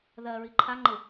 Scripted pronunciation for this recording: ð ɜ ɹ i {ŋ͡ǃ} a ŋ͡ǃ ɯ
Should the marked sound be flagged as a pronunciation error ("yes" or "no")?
yes